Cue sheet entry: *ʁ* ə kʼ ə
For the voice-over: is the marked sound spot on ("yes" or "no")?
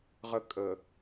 yes